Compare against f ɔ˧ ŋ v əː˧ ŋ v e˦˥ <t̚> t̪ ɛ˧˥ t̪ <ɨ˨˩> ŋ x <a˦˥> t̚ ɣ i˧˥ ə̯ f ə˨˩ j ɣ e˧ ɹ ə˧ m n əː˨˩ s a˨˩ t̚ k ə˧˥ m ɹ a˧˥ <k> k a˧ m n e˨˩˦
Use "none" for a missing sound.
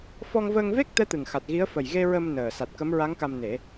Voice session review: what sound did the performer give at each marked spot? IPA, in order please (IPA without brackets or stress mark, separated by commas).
k̚, ɨ˨˩, a˨˩, ŋ